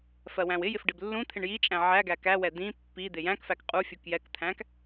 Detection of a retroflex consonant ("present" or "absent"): present